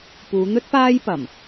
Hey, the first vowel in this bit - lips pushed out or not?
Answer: yes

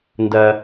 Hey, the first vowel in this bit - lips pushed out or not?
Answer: no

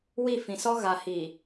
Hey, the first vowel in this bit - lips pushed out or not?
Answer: no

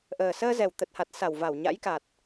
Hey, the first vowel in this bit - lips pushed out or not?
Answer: no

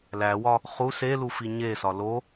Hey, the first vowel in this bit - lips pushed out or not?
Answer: no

